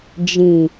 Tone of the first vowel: low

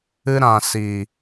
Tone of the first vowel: high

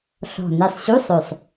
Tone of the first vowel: low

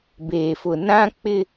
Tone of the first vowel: low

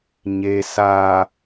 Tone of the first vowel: low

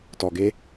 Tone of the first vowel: low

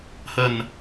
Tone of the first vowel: low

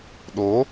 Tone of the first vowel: rising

